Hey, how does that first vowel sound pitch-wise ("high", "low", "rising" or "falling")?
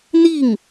falling